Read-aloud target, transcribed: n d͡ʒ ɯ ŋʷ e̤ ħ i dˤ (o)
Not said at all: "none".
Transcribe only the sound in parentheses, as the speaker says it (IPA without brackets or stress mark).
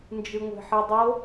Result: o